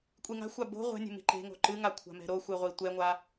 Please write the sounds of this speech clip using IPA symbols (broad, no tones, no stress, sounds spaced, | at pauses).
kʷʼ i ŋ a̤ xʷ a b o̤ ʁʷ ɛ̤ nʲ ɛ̤ m i̤ ǃ e̤ ŋ o̤ ǃ ɨ ŋ a kʷʰ a̤ m ɛ̤ ɾ o xʷ ɨ ʁʷ i tʷ ɛ ŋʷ a